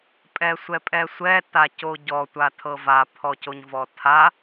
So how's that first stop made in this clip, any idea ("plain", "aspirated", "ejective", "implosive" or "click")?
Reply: ejective